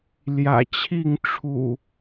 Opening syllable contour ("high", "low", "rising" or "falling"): low